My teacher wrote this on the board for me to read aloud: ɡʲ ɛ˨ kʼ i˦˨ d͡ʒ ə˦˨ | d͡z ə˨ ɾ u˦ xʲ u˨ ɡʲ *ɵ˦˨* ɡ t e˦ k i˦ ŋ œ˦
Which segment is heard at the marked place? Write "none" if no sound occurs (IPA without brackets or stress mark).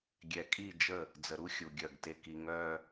œ˦˨